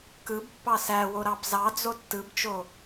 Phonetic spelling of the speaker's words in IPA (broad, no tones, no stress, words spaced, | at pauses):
kɯb pːɑsæwo ɾɑbzɑd͡zo tːɯbt͡ʃo